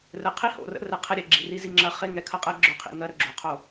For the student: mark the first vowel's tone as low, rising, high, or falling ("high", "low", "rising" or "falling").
low